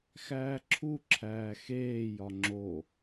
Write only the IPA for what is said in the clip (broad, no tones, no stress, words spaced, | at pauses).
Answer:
xæːǁʰuǁʰæː xeːjɒ ŋ͡ǁo